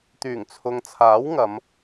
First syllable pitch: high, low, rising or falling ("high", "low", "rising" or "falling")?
low